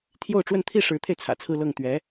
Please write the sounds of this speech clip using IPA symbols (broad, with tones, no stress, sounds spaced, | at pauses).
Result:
t̪ʰ j o˥˧ ʊ̯ ʈ͡ʂ w ə˥˧ n t̪ʰ i˥˩ ʂ ɻ̩˧˥ t̪ʰ e˧ ɪ̯ t͡sʰ ä̰˨˩ t͡sʰ ɹ̩˥˧ l ɤ˥˩ ŋ t̪ ɥ ɛ˧˥